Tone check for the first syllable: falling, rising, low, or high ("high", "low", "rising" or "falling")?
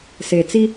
low